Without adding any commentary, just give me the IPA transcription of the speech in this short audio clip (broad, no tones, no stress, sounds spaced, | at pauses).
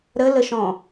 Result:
ɾ ə l ə ʃ ɔ̃